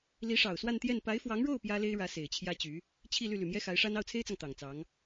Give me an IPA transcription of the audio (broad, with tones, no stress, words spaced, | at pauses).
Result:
li˧˥ʂɑ˨˩ʊ̯swa˥˧nt̪jɛ˥˩n pa˧˥ɪ̯fwɑ˧˥ŋɻo˥˩ʊ̯ pjä˥le˥ɪ̯ɻä˧˥ se˨˩ɪ̯t͡ɕʰjä˥t͡ɕy˧˥ | t͡ɕʰi˥˧ly˥˩ ly˨˩mjɛ˥xa˧˥ɪ̯ʂa˥n ɑ˥˩ʊ̯t͡sʰe˥ɪ̯t͡sɑ˨ŋ t̪ɑ˨˩ŋt͡sɑ˧˥ŋ